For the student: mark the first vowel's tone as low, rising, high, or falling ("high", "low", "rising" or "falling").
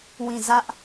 falling